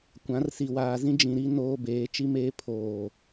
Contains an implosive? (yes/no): no